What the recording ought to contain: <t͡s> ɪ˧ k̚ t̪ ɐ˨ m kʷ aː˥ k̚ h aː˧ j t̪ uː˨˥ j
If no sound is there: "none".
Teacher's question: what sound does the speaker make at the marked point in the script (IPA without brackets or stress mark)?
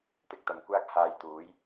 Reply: t̪